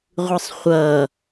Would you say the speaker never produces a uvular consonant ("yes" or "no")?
no